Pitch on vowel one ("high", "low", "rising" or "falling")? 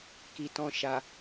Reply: low